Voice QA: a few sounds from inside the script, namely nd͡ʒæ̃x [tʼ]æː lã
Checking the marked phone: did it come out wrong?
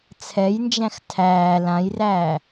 yes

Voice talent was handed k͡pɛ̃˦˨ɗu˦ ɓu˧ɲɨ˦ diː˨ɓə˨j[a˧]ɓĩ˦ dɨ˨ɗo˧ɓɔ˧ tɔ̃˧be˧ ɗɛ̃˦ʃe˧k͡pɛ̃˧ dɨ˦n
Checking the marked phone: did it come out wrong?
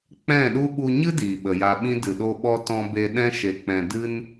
no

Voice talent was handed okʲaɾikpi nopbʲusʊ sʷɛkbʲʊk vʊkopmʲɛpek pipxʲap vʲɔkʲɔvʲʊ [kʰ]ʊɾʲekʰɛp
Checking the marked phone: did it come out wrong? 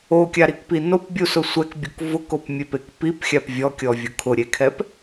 no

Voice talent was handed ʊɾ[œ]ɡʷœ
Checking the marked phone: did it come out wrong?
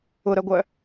no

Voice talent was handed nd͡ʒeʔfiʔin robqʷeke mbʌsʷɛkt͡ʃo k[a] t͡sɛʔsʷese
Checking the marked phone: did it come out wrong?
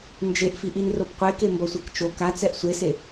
no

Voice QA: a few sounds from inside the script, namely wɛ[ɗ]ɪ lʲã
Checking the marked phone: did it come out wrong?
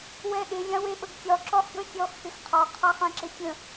no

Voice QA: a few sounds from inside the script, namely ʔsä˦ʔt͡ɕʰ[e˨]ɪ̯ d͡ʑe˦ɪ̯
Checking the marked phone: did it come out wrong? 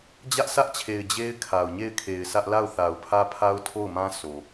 no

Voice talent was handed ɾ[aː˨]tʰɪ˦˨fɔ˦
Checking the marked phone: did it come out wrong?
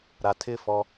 yes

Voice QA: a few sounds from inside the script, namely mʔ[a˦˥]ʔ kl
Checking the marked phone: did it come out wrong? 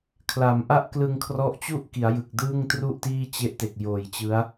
yes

